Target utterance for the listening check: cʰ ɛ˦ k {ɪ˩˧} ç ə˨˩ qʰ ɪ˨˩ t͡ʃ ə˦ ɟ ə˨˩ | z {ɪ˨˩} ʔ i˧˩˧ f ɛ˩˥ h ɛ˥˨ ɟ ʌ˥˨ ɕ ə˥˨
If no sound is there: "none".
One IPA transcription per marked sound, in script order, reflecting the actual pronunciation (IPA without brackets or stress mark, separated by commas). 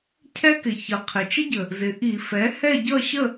ɪ˨˩, ɪ˩˧